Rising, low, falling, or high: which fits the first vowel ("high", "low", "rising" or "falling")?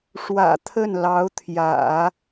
low